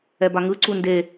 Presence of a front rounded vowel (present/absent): absent